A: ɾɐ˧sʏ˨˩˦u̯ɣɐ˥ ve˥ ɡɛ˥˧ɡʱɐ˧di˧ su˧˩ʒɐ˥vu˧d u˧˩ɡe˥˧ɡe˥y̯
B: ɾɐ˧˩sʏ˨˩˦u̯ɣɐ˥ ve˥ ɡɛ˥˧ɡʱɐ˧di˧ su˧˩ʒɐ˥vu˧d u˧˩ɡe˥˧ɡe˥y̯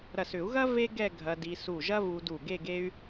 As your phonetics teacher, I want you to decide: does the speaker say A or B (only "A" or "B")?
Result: B